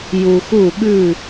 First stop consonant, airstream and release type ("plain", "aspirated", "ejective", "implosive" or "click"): implosive